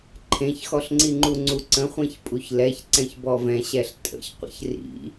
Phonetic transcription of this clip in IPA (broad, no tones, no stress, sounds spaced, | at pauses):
ǃʰ ẽ ç x ɔ ɬ ŋ͡ǀ i ŋ͡ǃ u ŋ͡ǀ u ǀ ə̃ χʷ ẽ ç pʼ u ç l ɛ ç ǀ ɛ̃ ç b ɔ v ɛ̃ ɕ ɛ ɬ tʼ ə̰ ç qʷ ə̰ ç r ḭ